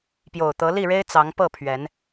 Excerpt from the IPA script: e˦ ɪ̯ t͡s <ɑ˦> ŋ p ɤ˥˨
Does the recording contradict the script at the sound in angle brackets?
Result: yes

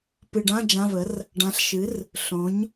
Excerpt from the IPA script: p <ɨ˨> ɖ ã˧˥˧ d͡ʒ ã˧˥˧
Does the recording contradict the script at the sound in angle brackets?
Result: no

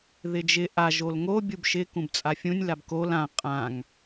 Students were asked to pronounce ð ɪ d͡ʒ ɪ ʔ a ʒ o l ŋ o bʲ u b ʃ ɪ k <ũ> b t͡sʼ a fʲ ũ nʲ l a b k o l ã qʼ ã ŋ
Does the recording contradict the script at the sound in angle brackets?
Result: no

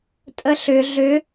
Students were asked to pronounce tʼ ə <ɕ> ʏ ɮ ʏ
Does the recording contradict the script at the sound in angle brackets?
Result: yes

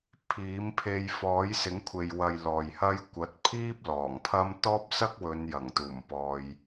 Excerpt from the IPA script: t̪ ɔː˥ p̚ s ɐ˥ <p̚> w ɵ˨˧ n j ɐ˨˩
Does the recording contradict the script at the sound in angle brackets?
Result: yes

